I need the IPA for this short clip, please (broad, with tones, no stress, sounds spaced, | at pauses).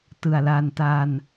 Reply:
t ɯ˨˩ a̯ l a˧ n t a˧ n